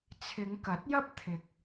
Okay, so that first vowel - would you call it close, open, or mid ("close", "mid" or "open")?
close